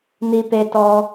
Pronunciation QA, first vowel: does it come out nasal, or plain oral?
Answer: oral